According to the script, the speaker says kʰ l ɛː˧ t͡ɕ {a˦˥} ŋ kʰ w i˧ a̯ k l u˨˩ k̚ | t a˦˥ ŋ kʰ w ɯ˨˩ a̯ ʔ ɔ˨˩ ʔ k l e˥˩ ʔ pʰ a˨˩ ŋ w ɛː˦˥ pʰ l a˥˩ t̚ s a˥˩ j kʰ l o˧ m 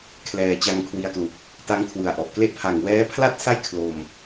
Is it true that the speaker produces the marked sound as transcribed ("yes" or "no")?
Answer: no